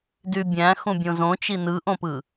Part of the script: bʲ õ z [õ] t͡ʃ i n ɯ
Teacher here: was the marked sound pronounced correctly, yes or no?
yes